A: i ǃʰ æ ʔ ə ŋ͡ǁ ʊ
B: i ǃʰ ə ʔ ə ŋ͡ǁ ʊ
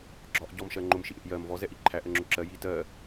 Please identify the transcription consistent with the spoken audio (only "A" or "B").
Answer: A